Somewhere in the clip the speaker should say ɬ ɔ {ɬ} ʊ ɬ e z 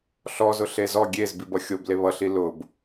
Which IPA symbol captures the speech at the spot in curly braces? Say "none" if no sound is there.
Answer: z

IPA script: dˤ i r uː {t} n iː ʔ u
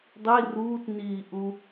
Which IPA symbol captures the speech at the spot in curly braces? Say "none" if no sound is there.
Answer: t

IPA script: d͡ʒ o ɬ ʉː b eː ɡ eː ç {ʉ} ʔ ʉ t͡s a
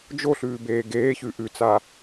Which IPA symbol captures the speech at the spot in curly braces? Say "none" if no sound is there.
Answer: ʉ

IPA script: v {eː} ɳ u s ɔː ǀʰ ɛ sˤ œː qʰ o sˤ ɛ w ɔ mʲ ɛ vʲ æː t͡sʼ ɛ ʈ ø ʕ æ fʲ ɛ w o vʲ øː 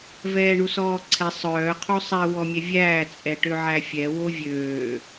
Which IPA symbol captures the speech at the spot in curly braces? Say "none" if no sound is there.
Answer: ɛː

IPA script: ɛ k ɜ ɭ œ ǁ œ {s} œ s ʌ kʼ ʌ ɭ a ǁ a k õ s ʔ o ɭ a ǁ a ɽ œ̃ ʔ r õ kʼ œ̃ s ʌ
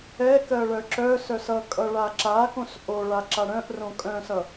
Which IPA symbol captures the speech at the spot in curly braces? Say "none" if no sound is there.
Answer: s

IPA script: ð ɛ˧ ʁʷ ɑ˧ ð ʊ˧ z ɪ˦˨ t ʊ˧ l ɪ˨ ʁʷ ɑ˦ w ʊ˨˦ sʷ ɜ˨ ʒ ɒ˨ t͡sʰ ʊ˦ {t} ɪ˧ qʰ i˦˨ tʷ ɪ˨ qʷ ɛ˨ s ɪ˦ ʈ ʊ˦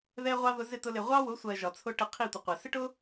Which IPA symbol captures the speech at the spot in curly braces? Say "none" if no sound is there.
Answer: ʈ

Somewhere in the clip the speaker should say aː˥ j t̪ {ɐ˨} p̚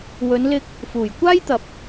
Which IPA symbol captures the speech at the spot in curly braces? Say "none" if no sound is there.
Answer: ɐ˨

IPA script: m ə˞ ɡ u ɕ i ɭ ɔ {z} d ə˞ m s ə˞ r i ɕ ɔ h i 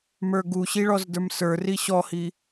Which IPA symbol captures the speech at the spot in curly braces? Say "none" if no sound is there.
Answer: z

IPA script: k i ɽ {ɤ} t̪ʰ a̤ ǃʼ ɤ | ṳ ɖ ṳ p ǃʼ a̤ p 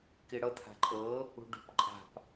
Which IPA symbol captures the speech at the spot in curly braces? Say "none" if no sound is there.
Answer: ɤ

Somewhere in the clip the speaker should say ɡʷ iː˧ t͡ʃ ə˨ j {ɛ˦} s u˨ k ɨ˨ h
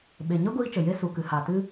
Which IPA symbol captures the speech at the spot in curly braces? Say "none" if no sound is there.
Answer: e˦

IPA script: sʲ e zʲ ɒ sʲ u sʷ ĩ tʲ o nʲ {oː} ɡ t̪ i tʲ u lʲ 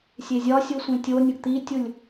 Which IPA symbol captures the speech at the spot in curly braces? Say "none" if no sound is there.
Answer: o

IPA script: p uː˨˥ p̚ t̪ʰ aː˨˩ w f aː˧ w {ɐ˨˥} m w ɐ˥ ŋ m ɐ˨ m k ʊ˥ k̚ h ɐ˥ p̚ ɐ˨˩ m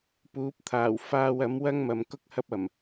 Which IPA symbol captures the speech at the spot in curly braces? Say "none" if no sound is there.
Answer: ɐ˨˥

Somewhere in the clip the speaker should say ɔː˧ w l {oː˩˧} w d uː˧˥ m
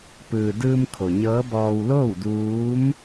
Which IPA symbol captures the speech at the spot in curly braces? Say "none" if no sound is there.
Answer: oː˥˨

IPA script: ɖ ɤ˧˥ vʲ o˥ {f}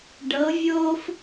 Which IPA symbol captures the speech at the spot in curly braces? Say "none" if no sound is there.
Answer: f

